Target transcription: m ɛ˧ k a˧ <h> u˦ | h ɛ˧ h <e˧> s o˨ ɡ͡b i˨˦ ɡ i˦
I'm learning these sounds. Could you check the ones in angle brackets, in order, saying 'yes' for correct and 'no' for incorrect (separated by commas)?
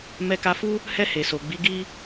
no, no